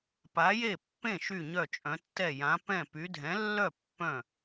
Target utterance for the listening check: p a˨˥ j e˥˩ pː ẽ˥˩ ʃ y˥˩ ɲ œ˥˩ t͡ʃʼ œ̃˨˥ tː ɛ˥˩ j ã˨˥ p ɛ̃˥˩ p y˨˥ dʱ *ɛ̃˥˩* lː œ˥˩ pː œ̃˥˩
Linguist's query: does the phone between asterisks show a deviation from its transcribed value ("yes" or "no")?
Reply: yes